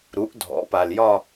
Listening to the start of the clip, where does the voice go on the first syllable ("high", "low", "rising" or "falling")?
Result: rising